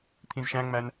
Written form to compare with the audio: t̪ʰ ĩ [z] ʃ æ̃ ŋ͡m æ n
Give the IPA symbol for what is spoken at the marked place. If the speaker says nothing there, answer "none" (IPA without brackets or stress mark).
z